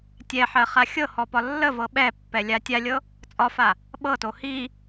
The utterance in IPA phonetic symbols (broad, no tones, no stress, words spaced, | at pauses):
tʲɛħɜχa xʲɤhɔpɒ lːəvɤ ɓɛpːɛlʲa tʲalʲɤ | t͡sʼɒfa | ɓɤto hi